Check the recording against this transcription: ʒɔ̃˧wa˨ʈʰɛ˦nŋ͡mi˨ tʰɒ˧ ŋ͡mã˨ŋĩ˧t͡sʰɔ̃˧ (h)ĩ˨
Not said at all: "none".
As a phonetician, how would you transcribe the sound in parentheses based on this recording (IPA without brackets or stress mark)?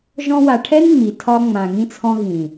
ɣ